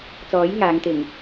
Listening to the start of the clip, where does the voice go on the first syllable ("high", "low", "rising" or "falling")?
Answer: rising